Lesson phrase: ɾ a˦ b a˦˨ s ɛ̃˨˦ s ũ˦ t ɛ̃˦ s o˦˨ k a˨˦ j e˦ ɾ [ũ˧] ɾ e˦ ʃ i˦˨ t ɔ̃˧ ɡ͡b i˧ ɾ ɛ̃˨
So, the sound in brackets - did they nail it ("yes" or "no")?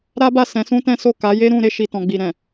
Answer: yes